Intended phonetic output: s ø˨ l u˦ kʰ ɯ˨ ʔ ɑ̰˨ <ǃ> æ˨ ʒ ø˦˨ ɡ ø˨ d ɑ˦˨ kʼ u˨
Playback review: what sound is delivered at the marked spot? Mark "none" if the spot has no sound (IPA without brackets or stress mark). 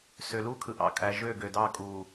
kʼ